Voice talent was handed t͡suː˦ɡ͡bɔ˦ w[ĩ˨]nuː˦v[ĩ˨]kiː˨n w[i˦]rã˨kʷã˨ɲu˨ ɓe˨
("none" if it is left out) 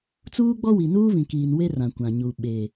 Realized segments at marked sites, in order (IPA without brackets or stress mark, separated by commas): i˨, ĩ˨, e˦